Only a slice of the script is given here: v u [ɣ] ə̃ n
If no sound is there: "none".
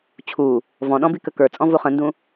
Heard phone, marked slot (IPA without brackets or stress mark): χ